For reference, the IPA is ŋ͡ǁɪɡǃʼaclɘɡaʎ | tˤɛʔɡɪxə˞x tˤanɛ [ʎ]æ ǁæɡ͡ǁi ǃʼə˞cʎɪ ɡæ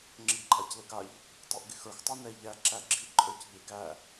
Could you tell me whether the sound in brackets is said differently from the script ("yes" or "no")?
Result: no